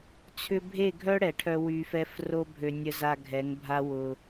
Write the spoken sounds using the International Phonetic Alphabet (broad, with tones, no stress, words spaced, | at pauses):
t͡sʰʏ˦ bʱe˦˨ɡʱœ˦ ɽɛ˨ʈʰœ˦ wy˧fɛ˦f ro˦bʱø˧ nʲə˧za˧ ɡʱɛ˨˦ŋbʱa˦ wʊ˧